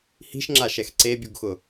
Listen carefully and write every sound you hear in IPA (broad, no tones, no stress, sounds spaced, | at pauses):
h i̤ ʃ ŋ͡ǁ a ʃ ɛ x ǀ e bʲ u ɡ x ʊ